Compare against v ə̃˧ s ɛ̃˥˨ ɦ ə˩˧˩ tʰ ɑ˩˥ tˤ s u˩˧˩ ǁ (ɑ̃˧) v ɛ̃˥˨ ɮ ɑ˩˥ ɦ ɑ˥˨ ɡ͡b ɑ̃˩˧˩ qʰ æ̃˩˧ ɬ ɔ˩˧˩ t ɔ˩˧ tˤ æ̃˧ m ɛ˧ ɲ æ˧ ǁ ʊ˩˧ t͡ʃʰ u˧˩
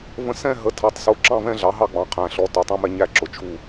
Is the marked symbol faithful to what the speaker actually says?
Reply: no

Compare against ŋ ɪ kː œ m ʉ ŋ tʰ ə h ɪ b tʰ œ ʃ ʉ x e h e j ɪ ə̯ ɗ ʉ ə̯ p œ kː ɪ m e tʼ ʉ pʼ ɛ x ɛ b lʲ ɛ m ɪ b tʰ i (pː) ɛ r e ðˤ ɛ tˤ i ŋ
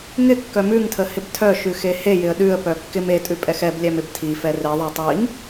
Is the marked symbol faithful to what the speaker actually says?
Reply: no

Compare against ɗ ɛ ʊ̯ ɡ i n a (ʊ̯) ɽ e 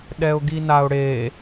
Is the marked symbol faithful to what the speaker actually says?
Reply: yes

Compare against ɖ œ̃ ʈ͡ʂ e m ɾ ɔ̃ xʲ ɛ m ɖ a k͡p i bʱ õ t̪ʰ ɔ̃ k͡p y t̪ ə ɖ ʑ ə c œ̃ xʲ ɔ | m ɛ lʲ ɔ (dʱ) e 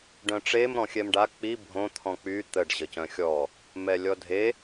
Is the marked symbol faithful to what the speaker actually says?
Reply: yes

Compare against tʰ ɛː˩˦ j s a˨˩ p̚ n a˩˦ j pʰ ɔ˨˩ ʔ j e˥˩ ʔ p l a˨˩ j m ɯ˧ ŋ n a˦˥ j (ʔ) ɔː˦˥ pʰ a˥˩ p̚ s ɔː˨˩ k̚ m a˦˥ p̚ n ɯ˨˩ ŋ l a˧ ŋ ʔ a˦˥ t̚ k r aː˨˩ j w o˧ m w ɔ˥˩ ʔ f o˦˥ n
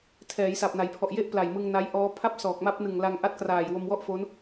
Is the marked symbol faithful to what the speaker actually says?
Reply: yes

